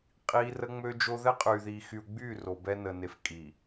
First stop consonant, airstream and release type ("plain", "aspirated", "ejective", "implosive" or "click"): ejective